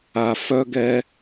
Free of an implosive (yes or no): yes